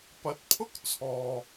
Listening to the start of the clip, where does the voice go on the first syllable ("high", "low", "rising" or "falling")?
rising